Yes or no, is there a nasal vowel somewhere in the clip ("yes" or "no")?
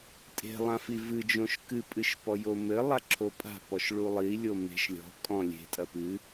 yes